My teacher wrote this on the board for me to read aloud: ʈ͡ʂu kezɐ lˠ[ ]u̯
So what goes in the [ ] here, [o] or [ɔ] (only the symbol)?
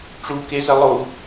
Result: o